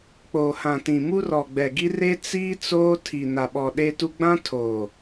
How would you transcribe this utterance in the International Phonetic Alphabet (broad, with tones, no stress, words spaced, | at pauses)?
k͡poː˨hã˨tĩ˨ mu˦rɔ˨ɡ͡bɛ˨ɡi˦ re˦ t͡siː˦ t͡soː˦tʰi˨ na˨ɓɔ˨ɗe˦tu˦ ɡ͡bã˦ tʰoː˨